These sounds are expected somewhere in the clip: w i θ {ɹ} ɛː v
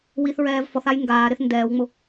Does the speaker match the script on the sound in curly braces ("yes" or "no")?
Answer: yes